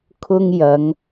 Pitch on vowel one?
high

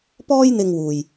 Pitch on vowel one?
high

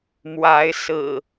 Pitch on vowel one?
rising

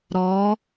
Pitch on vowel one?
rising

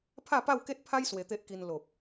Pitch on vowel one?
falling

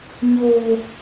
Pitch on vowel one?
low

